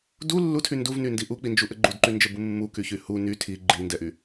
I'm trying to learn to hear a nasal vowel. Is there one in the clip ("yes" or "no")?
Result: no